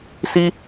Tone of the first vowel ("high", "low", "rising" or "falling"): high